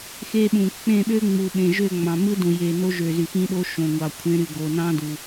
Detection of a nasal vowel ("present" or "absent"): present